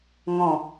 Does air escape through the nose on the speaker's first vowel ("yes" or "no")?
yes